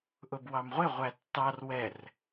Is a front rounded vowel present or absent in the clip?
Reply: absent